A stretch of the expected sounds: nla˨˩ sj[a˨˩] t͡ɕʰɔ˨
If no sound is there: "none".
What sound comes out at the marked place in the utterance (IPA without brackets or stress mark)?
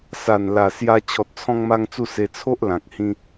a˧